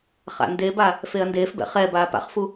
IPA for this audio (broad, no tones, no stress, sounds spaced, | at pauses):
χ a̰ n d e b a | f e ɐ̯ n d eː f b ɛ̰ χ ɛ b aː p a̰ χ f u